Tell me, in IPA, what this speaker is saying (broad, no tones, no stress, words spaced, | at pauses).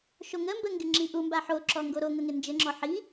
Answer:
ʃoŋəmbə ŋɡɪŋ͡ǁiʔumba ħoǁɔ ŋɡoɾoŋə ŋɪnd͡ʒɘŋ͡ǁɔ ħi